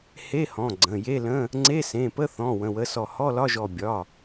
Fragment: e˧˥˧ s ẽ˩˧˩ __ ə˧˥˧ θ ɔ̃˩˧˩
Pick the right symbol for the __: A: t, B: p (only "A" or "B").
B